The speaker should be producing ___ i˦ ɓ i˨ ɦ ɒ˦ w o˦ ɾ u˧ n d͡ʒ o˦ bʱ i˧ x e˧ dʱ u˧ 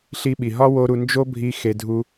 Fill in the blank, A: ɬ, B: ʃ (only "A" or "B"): A